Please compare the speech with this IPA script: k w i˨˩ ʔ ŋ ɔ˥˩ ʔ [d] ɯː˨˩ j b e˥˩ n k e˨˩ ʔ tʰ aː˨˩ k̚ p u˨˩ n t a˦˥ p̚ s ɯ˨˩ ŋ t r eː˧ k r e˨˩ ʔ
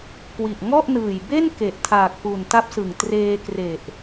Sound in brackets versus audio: incorrect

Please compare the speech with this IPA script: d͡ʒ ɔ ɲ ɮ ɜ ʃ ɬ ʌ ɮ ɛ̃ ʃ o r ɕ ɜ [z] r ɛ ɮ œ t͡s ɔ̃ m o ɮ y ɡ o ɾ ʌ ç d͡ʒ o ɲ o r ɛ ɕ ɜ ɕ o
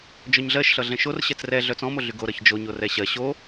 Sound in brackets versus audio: incorrect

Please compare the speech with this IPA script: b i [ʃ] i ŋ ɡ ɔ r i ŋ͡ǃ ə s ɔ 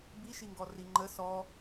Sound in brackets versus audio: correct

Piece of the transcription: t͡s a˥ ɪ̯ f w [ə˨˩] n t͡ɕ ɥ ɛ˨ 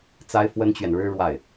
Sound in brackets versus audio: incorrect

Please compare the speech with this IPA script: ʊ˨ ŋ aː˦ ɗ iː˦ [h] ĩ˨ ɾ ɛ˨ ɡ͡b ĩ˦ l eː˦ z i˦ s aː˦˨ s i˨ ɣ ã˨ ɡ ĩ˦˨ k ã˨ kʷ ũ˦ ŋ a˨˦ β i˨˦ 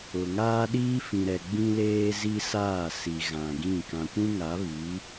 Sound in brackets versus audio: incorrect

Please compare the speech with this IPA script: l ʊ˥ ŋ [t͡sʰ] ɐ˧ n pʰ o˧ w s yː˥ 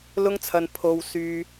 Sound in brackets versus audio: correct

